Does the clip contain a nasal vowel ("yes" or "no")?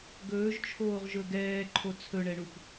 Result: no